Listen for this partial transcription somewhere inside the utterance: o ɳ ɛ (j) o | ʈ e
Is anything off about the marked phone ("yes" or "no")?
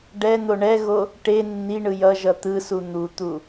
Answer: yes